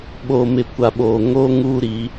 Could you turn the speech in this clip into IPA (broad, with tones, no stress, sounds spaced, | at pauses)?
ɓ o˨ m ɪ˨ kʷ a˨ ɓ o˨ ŋ o˦ ŋ uː˦ ɾ i˨˦